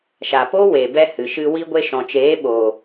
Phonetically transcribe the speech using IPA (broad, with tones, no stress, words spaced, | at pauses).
ʃa˨po˦we˨bɛ˧ hɨ˨ʃɨ˧ wi˧ɡʷe˧ʃɔ̃˨t͡ʃeː˨˦ ɓo˨